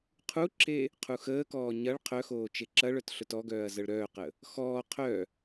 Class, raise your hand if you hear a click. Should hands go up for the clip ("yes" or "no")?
yes